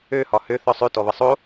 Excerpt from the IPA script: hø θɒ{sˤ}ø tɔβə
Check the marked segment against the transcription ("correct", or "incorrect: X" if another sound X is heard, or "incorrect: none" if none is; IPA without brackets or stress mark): correct